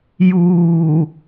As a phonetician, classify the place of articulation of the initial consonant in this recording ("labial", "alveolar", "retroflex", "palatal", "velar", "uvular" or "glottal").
palatal